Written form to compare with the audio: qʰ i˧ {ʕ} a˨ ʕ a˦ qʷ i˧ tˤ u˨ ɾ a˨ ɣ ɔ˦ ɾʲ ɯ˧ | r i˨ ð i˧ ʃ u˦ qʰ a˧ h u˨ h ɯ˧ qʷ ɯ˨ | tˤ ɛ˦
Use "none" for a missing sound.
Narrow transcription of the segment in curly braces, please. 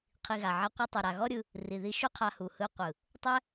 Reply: ɣ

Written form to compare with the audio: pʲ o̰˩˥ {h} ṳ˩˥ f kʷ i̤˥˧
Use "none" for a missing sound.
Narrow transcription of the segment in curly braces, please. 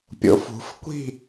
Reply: f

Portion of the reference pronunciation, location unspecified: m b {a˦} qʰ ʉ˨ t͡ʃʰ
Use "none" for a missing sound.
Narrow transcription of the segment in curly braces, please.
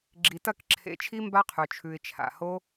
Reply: a˦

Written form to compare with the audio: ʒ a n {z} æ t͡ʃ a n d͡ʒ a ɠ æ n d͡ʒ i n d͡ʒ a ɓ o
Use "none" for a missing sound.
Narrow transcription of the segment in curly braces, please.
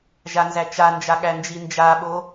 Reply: z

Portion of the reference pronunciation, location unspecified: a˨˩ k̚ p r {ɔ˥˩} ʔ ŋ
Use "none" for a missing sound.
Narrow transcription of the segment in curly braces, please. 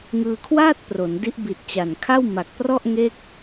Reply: ɔ˥˩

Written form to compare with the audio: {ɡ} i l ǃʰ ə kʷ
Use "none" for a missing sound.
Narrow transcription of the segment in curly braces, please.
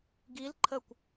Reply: ɡ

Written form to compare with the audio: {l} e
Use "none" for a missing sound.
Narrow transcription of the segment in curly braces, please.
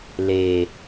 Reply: l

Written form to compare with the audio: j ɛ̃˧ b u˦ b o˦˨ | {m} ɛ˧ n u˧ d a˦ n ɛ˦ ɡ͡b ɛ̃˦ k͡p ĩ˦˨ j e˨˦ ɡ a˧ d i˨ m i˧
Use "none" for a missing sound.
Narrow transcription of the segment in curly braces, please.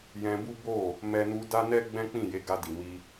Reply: m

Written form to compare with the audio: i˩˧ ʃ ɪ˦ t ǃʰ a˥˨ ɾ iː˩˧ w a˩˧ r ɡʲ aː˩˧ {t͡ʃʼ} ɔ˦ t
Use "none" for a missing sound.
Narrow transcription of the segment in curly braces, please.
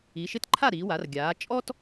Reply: t͡ʃʼ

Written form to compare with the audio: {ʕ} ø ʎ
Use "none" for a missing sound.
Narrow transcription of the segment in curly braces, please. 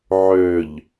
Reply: ʕ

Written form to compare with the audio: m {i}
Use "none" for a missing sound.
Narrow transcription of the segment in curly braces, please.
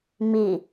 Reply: i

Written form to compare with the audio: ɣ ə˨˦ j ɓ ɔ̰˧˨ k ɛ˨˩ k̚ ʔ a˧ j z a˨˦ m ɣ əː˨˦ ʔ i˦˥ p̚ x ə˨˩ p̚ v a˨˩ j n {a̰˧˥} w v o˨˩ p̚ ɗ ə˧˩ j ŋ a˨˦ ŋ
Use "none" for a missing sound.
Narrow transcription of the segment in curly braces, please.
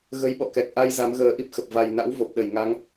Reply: a̰˧˥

